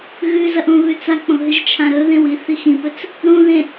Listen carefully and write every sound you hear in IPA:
ɣʉzɐʔ ũβʉt͡sak͡põ ɦɨʒt͡ʃʰãɾɵ ðẽwi θixĩpɵt͡s | ɾũðẽ

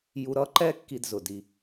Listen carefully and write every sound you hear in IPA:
ju˧ɾʌ˥ǃɛ˥ kːi˥dzʊ˩ di˧

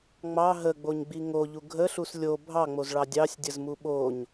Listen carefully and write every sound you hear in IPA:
ŋ͡mɑ ɦəɡ͡boɲɡ͡bi ŋoʎu ɡʱəɬus lʲo bʱɑŋ͡mozɭɑ dʲɑsʲdʲəzmu ɓoɲ

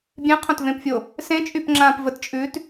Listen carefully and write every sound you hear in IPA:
bʲẽqʰõtvẽpfʲo | sẽt͡ʃʼypŋ͡ǁãːp vətt͡ʃʼʉːt

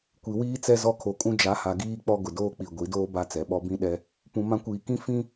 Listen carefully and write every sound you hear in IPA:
kʷi˨wiː˦ t͡sɛ˦zɔ˦ kʰo˨˦kʼũ˦ d͡ʒa˨˦ha˨ ɡiː˦ k͡pɔ˦ɡʊ˨doː˦k͡pi˨ ɡʷi˨˦doː˦ ba˦t͡sɛ˨˦ɓɔ˦ bĩ˦ ɗɛ˦ | pũ˨ mã˦ kʷiː˨ kĩ˦ fĩ˦

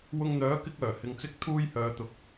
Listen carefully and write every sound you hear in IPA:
wʊ˧ŋn̪œː˨˥ kɪ˥k̚œː˨˩hɪ˨ŋt͡sɪ˥k̚ t̪ʰuː˥jhœː˨˧t̪ʊ˨˥k̚

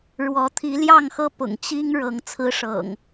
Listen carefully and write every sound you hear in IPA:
ɻwɔ˨˦t̪ʰi˨˦ ljɑ˥˨ŋxɤ˦ pʊ̰˨˩ŋ t͡ɕi˦ŋ ɻɤ˨˦ŋ t͡sʰɹ̩˦ʂɤ̰˨˩ŋ

